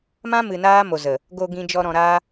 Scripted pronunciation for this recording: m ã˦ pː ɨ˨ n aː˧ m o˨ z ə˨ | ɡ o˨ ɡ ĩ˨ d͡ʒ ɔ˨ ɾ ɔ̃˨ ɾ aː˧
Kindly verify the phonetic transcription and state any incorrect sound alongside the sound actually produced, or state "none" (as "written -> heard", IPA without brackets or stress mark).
pː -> m